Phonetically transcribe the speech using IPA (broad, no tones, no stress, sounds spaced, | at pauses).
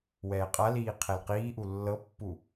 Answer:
w ɛː qʼ a l iː qʰ ɛ l q iː ʔ u lː ɤ pː u